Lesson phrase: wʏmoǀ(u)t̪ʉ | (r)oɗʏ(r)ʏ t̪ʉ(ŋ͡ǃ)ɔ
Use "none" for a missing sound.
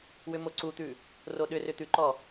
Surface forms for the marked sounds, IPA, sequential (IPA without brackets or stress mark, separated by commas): u, r, r, ǃ